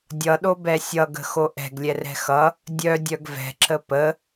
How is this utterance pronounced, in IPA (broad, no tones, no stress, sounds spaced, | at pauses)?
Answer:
dʲ ʌ ɗ o b ɛ sʲ ʌ ɡ ə̤ x o ʔ ɛ̤ ɡ lʲ ɛ r ɛ̤ x ʌ | dʲ œ dʲ œ ɡ v ɛ̤ ǁ ə p ə